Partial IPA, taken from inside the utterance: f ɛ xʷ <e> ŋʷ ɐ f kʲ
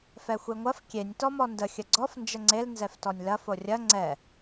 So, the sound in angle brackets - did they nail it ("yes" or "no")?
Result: yes